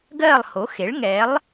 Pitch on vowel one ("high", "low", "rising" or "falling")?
falling